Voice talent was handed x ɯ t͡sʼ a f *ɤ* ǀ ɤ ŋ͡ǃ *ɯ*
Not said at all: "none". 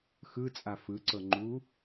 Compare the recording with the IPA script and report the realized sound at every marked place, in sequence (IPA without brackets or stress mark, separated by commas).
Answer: ɯ, u